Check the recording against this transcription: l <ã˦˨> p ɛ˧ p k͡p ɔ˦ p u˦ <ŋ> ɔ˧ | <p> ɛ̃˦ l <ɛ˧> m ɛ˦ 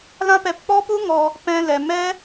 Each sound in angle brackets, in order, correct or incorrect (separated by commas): incorrect, correct, correct, correct